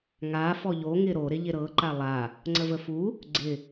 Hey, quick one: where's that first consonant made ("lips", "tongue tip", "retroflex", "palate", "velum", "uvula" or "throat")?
velum